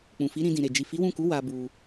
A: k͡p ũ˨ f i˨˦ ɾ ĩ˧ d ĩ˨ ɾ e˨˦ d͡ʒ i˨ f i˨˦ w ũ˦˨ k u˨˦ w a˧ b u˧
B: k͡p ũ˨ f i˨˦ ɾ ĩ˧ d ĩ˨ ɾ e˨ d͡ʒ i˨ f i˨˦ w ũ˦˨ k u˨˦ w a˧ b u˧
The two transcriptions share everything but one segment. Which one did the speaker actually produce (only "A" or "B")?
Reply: B